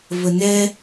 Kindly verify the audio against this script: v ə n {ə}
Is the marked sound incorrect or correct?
incorrect